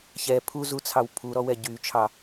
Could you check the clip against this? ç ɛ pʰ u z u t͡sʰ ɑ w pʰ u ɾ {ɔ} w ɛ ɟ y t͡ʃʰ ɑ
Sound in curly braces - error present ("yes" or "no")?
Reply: no